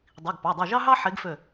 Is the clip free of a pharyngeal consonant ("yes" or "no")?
no